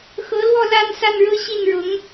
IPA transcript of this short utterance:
x ɤ˧˥ l w ɔ˥˧ l a˥˧ n s a˥˧ n ɻ ɤ˥˧ ɕ i˥˩ n ɻ ʊ˧˥ ŋ

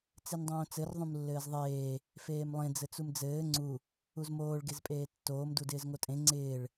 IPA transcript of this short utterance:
t͡s e n dˤ õː t͡s ɘ r ðˤ ũ m lː ɘː z ðˤ eː | f eː m lˠ ẽ d͡z ɘ t͡s u m d͡z ɘː ŋ͡ǀ u | u z m oː ɭ ɡ e z pʼ eː tː oː m d u d ɪː z ŋ o tʼ ẽ ŋ͡ǀ ɪː ɭ

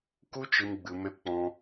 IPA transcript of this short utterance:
k u˦ t͡ʃ ɨ˧ m ɡ͡b ɨ˧ m e˦ p k͡p ɔ̃˦

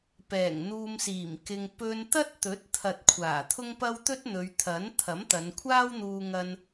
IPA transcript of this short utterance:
p ɛː˨˩ ŋ n̪ uː˧ m s iː˨˩ m k ɪ˧ ŋ p ɵ˧ n t̪ ɐ˥ t̚ t̪ ɵ˨˥ t̚ t̪ʰ ɐ˨ t̚ kʷʰ aː˨˩ t̪ʰ ʊ˥ ŋ p ɐ˥ w t̪ ɵ˥ t̚ n̪ ɵ˨˧ ɥ t̪ʰ ɐ˨˥ n t̪ʰ ɐ˨˥ m t̪ ɐ˨˧ n kʷʰ aː˥ w n̪ uː˧ ŋ ɐ˧ n

